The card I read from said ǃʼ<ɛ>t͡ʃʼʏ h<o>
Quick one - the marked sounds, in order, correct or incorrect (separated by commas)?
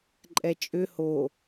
correct, correct